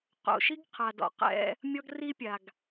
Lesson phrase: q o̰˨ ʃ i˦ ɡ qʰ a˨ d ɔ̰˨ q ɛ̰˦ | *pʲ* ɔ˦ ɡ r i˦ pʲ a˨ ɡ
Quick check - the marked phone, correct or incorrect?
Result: incorrect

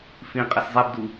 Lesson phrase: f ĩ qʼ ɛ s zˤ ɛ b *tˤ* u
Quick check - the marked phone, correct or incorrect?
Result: incorrect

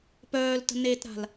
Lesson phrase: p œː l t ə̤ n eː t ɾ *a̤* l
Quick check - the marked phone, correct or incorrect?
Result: correct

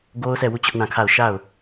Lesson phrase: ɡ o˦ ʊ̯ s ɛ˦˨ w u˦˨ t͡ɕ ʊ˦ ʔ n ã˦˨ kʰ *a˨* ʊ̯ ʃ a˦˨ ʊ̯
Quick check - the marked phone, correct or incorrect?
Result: incorrect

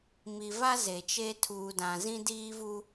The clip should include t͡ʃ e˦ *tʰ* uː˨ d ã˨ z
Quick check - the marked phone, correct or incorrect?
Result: correct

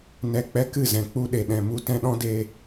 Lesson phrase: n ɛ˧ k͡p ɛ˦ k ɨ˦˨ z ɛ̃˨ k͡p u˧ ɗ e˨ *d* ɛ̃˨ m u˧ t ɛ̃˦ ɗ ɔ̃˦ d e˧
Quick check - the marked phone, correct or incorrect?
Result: incorrect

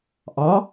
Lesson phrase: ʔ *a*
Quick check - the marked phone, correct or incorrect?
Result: incorrect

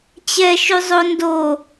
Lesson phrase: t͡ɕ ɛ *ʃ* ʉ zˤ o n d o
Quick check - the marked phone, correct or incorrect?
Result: correct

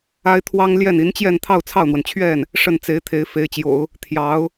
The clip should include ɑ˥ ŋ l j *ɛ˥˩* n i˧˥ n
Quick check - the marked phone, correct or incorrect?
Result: correct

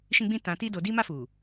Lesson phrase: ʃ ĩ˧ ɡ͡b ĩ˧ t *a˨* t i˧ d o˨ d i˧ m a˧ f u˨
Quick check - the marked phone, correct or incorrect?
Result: incorrect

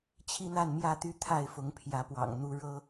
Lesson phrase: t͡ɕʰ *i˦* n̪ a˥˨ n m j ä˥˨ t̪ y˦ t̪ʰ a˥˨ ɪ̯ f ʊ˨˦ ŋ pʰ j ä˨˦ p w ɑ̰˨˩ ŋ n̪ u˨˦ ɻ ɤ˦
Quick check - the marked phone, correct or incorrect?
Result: correct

